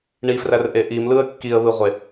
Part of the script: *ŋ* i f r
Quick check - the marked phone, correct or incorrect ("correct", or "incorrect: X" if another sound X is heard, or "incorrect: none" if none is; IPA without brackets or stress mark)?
incorrect: ɳ